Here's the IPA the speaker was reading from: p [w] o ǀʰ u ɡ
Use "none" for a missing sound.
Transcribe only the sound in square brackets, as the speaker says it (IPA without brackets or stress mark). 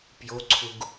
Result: j